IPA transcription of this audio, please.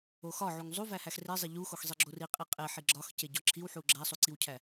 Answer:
o x ɒ ʕ u ŋ zˤ u v æ h æ x r e zˤ e ʎ u x o x zˤ i ɡ͡ǁ o r i qʼ i qʼ e ħ i ɡ͡ǁ ɒ x c e ɟ ɒ ǁʰ i w ħ u ɡ͡ǁ æ sˤ u ǀ i w cʰ æ

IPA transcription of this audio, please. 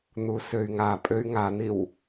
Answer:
n̪ u s ø y̯ ŋ a pʼ ø y̯ ŋ a n̪ i w

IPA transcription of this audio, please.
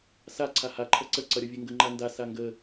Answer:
s a ǀʰ a h a ǃʰ ʌ ǀ ə ǀ ʌ ɾʲ ʌ vʲ e ŋ ɡ ə ŋ͡ǃ a n d a s a ŋ ɡ ə

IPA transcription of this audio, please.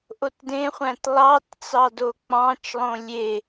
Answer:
ʔ o t d ẽ χʷ æ̃ t lˠ ɑ t t͡s ɑ d o k͡p ɑ̃ t͡ʃ lˠ õ lʲ e

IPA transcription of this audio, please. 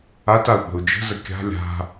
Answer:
a t a u̯ ɓ ə̤ u̯ d͡ʒ ə̤ z ə kʲ a̤ lʲ a̤

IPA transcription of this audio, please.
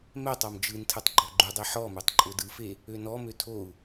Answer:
m ɛ tˤ ɔ m d͡ʒ ɯ n tʰ ɯ tˤ ɡ͡ǃ ɔ ɡ͡ǃ u dˤ e ħ ɔ m ø tˤ ǃʼ ʊ d ɯ f e | ø n ɔ m ø tʰ o u̯

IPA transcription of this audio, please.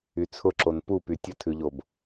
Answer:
y t͡sʰ ʊ ǁ o n p u p y tʲ ə tʰ ʉ ʎ o b

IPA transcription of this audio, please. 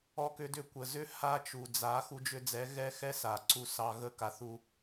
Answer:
ɔ˧ k ʏ˧ d ʏ˧ kʷ ə˨ z ʏ˦ h a˦ t͡ʃ u˨ d͡z a˨˦ x u˧ d͡ʒ ʏ˧ d͡z ɛ˨˦ ɣ ɛ˦ x ɛ˦ s a˨ ǀ u˧ s ɑ˧ ɣ ə˦˨ k a˧ θ u˧

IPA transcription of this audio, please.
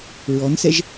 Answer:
ɹ ɔ n s ɛ ʒ

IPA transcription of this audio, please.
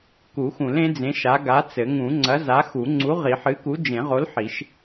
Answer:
k u˨˩˦ x ũ˨˩˦ l ẽ˨˥ d͡z ẽ˨˥ ʃ a˨˥ ɡ a˨˥ t͡s ɘ˨˩˦ ŋ ũ˨˩˦ ŋ͡ǀ ɐ˨˥ z a˨˥ x u˨˩˦ ŋ͡ǀ u˨˥ ʁ i˨˩˦ ħ ɨ˨˥ k u˨˥ d͡ʒ ẽ˨˩˦ ʁ o˨˥ l ħ i˨˩˦ ʃ

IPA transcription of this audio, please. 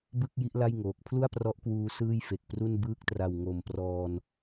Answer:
b ɯ˥˩ k̚ j i˦˥ ʔ l a˥˩ j ŋ oː˨˩ k̚ pʰ l u˥˩ a̯ p r ɔ˦˥ ʔ k w uː˧ s ɯː˥˩ j f e˨˩ k̚ p r u˥˩ n b ɯː˥˩ k̚ t r a˨˩ w ŋ o˨˩ m p r ɔː˧ n

